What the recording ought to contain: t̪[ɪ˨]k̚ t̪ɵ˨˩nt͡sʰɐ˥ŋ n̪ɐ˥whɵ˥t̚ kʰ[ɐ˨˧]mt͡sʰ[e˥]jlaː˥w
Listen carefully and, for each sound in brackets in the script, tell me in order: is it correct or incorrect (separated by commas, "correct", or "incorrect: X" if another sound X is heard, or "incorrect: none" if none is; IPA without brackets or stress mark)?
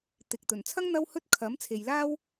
correct, incorrect: ɐ˨˥, incorrect: e˨